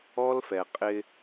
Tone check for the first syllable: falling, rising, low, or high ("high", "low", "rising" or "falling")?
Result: high